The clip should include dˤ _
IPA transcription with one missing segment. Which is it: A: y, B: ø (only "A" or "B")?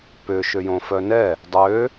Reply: B